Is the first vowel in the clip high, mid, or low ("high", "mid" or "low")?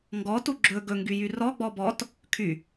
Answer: mid